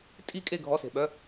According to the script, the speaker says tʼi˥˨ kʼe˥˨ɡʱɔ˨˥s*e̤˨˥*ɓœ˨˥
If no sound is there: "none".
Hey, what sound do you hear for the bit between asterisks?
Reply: e̤˩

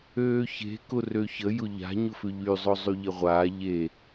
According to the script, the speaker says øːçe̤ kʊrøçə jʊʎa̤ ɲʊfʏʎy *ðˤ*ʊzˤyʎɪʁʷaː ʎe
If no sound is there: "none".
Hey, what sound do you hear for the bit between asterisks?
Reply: zˤ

